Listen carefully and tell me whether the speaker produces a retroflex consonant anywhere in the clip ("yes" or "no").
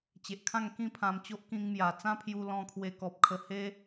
no